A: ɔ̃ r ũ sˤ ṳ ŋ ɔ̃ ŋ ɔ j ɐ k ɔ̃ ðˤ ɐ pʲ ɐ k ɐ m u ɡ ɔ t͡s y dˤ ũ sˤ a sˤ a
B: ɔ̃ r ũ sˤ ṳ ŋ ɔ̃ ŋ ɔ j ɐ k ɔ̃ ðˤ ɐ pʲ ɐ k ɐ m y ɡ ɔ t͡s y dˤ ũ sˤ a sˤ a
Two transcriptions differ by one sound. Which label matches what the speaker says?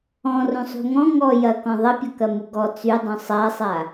A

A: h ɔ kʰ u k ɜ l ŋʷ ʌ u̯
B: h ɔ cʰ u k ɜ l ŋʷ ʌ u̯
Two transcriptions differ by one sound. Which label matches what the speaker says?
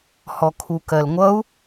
A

